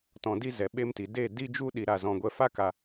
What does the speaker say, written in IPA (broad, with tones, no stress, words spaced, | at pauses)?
tɔ̃˧di˦ zɛ˨ɓe˧mti˨de˦˨ di˦d͡ʒu˦ ɗi˧ɾa˦˨zɔ̃˧ɡʷɛ˦ fa˦ka˧